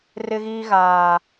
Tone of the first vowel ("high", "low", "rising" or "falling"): high